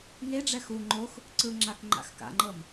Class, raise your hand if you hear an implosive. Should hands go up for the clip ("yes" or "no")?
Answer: no